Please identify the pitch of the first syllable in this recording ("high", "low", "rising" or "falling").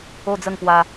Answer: falling